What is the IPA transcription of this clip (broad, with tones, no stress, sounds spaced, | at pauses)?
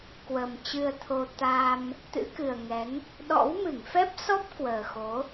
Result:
k w ə˨˩ m t͡ɕ ɨ˧ ə̯ t̪ʰ o˧ t̪ a˧ m | t̪ ɨ̰˧˥ k ɨ˨˩ ə̯ ŋ ɛ˨˦ ŋ | ɗ ɔ̰˧˥ w m ɨ˧˩ ŋ f ɛ˦˥ p̚ s ɔ˦˥ p̚ k w əː˨˩ x o˨˦